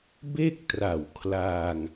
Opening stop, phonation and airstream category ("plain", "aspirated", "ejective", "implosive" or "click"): plain